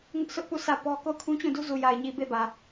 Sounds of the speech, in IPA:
ŋ ʊ˦ ʔ s ʊ˦ ʔ p u˦˨ s ä˦˨ p ɔ˦ k o˦˨ ʊ̯ kʰ ũ˦ t͡ɕ ũ˦˨ d u˦ z u˨ j a˨ ɪ̯ ɲ i˨ b e˦˨ b ä˨

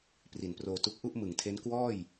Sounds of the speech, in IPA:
p r i˨˩ n p r oː˧ t u˥˩ k̚ ʔ u˥˩ ʔ m ɯ˨˩ ŋ tʰ e˦˥ n k w ɔː˥˩ j

